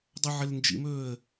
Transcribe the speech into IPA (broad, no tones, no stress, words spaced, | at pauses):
dˤɵʕɘlnd͡ʒḭmɵːə̯